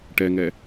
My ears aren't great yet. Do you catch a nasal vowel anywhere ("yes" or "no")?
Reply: no